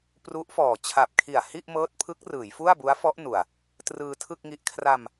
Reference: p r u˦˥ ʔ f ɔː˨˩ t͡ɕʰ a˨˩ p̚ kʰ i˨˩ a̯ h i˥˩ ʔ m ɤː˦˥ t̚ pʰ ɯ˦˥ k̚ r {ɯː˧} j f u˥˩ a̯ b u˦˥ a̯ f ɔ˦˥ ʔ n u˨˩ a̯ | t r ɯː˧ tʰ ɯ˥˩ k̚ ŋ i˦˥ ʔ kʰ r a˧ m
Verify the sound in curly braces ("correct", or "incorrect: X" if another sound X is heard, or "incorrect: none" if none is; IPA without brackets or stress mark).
incorrect: ɯː˩˦